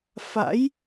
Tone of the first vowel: rising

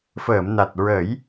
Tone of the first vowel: low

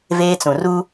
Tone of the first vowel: high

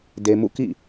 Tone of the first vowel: low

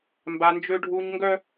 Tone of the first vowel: high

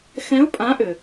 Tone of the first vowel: rising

